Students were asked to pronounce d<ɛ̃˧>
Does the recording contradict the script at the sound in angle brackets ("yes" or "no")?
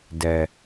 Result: yes